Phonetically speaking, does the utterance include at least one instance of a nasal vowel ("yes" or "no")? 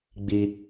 no